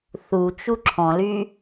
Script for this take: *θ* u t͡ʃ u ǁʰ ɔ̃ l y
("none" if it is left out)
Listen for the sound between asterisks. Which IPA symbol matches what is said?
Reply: θ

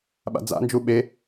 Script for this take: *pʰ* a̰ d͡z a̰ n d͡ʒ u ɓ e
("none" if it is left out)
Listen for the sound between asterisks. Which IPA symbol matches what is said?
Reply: ɓ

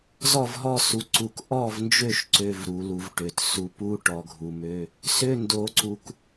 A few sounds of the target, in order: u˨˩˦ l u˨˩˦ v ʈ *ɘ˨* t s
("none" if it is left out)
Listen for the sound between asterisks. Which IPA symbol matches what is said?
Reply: ø˨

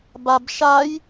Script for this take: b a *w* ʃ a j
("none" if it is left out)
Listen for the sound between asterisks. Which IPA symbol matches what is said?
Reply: b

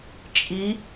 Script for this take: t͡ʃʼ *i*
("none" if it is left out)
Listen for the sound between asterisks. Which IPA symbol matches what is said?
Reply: i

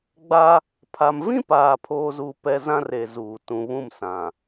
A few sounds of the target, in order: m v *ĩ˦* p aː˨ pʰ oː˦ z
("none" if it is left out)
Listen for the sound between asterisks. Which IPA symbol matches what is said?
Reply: ĩ˦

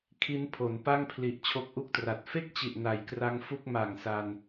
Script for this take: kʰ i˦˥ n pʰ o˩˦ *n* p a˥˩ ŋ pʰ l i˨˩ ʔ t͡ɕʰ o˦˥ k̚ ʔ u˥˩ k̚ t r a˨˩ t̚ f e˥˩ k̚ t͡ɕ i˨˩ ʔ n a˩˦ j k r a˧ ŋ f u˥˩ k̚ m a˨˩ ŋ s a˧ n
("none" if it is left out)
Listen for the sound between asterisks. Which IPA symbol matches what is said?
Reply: n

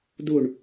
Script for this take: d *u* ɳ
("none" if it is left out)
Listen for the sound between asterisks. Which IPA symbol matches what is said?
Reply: u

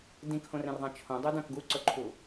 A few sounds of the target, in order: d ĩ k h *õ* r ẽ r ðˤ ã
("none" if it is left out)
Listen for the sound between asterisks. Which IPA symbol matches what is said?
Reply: õ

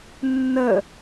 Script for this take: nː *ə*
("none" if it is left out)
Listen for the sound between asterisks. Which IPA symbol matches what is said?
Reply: ə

